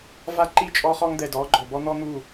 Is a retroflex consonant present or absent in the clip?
absent